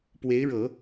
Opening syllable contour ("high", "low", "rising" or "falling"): rising